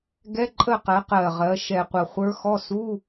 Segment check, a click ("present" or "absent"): present